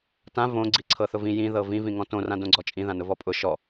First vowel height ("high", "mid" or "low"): low